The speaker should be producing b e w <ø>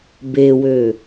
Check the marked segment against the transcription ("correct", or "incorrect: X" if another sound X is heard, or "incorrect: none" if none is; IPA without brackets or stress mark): correct